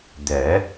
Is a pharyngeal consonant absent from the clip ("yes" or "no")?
yes